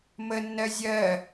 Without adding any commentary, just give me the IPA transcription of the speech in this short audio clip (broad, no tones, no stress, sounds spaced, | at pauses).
m ə nː ɜ zʲ ɜ